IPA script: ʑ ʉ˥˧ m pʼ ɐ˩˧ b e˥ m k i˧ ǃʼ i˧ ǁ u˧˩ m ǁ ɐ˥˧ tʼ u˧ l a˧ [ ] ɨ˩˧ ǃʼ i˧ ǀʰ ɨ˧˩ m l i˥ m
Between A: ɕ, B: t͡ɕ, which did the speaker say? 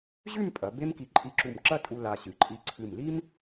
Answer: A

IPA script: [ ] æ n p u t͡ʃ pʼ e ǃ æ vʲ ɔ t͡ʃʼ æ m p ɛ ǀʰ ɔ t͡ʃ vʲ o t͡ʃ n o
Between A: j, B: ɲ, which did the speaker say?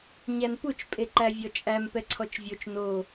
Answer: B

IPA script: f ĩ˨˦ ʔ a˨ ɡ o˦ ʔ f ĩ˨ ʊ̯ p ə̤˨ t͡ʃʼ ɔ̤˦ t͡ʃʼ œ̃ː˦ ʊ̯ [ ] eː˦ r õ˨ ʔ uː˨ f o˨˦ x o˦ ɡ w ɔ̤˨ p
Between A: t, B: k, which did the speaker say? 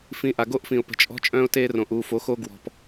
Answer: A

